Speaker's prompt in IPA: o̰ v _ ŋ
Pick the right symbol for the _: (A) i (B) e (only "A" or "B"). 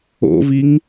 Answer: A